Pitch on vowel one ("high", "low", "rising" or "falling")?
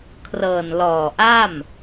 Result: low